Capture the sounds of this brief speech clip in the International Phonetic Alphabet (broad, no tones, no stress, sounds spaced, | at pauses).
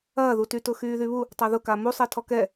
ɐː ð u t y t ʊ x yː ð y β u | tˤ a ð ʊ k a m u sˤ ɛ tʰ ɔ k ɛ